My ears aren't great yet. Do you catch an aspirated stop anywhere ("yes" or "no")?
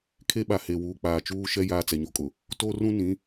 yes